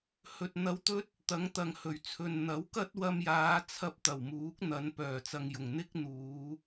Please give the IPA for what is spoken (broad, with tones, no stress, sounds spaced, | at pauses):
h ɵ˧ t̚ n̪ ɐ˧ w t̪ ɵ˥ t̚ | t̪ ɐ˨˥ ŋ t̪ ɐ˨ ŋ h ɵ˨˩ ɥ t͡sʰ ɵ˨ n n̪ ɐ˨˥ w k ɐ˥ t̚ w ɐ˧ m j aː˨˧ t͡sʰ ɐ˧ p̚ t̪ ɐ˨˩ w m uː˨˥ k̚ n̪ ɐ˨˧ n p œː˨˩ t͡s ɐ˨ ŋ j ʊ˨˩ ŋ n̪ ɪ˥ k̚ n̪ uː˨˧